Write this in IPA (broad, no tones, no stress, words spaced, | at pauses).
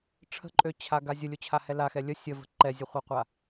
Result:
ʈ͡ʂʰə̤ǃʼøt͡ɕʰaɡa zʲəlʲot͡ɕʰahɛ laxɛ lʲə sʲəvə̤ ǃɛzʲəχʷɛqʷa